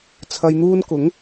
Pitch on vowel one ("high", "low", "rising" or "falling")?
low